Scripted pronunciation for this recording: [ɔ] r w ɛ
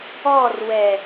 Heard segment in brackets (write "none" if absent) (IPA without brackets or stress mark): ɔ